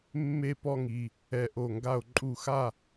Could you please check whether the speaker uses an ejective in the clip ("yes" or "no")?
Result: yes